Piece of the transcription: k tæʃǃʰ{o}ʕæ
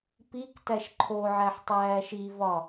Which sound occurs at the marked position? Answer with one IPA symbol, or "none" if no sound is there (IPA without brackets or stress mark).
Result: o